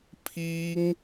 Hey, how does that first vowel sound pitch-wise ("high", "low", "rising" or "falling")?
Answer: high